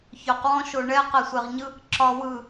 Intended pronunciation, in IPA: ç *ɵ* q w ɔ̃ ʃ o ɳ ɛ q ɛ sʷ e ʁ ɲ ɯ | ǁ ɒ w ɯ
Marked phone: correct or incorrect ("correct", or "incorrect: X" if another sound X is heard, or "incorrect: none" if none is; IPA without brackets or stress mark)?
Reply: correct